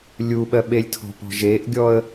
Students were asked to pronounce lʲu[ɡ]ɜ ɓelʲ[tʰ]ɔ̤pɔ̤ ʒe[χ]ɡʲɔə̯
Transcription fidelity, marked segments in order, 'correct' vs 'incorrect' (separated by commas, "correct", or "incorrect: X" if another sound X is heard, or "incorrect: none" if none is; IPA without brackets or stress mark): incorrect: ɓ, correct, incorrect: ʔ